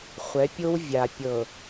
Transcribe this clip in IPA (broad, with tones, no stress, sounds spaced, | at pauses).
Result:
χʷ ɛ˨˦ pʲ o˦ w vʲ a˨ pʲ ɤ˨